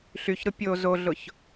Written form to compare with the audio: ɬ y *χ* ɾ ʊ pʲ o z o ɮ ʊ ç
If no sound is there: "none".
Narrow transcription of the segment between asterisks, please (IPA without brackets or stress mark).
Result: ç